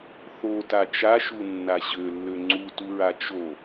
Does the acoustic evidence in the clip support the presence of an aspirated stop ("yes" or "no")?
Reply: no